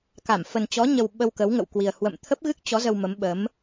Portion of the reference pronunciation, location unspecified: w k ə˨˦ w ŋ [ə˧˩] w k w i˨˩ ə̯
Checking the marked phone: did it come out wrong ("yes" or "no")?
yes